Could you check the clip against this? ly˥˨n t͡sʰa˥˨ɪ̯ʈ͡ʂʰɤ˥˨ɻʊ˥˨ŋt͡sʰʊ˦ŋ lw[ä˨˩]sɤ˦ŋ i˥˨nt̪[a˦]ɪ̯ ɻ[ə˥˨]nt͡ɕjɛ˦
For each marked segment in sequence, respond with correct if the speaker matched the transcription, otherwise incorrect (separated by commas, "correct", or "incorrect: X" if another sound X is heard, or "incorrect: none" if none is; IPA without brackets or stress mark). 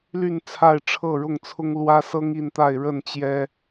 incorrect: ä˦, incorrect: a˥˨, correct